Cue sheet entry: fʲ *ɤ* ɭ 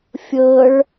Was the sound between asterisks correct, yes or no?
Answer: yes